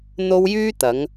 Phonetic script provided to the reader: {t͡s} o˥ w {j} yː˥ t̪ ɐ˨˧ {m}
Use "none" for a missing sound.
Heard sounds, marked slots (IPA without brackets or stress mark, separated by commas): n̪, j, ŋ